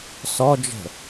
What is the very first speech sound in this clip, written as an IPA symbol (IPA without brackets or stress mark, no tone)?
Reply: s